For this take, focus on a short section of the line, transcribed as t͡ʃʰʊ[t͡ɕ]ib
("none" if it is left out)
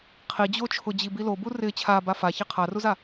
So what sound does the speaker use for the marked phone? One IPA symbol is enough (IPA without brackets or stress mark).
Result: d͡ʑ